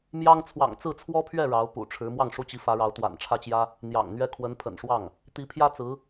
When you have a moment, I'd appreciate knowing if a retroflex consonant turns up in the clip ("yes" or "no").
yes